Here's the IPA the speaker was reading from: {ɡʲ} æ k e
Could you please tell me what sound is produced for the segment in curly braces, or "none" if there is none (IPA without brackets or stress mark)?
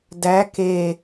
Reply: d